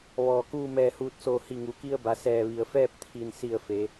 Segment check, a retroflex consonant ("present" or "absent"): absent